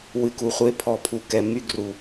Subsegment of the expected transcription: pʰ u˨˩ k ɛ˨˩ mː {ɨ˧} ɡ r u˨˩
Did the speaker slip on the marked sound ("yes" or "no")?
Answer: yes